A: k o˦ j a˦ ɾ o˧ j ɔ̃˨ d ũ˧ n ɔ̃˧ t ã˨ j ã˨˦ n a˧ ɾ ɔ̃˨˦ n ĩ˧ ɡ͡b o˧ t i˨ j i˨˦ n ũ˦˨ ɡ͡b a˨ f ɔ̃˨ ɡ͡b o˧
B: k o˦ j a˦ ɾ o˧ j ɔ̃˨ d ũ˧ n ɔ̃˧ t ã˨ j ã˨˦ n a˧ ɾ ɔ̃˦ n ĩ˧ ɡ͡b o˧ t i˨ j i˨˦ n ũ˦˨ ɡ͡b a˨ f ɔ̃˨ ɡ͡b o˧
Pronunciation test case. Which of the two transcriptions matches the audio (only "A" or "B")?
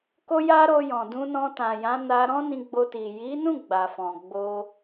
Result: B